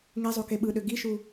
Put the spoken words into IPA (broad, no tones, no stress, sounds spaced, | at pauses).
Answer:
ŋ e zˤ o k e ɓ ɯ ɗ ø ɡ i ʃ u